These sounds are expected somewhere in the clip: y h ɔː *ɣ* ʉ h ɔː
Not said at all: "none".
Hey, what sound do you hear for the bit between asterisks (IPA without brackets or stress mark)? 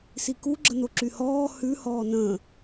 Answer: h